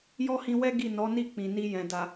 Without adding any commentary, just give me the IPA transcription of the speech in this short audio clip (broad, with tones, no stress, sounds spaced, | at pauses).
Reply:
j ɔ˦ h ĩ˧ w ɛ˦ ɡ i˦˨ n ɔ˨˦ n i˦˨ k͡p ĩ˨ n i˧ j ɛ̃˨ d a˨